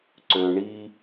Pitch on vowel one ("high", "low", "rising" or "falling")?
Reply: low